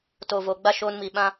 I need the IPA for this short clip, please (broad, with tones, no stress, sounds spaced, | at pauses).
t o˨ v o˨ ɡ͡b a˦ ʃ oː˧ n m i˨ ɓ ã˦